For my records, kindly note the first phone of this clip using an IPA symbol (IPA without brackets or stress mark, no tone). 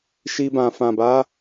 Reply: ʃ